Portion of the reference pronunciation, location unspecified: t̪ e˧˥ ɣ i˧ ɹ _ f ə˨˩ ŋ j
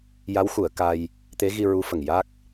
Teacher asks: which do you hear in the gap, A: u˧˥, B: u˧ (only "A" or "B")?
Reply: A